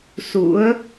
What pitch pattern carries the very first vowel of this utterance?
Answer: rising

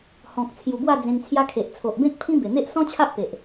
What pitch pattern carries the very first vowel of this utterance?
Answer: low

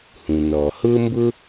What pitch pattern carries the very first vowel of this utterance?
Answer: low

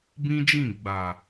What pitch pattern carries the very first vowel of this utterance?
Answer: high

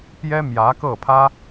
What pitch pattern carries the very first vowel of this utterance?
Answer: high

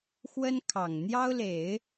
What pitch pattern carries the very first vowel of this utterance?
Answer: high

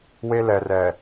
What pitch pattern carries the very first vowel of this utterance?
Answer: high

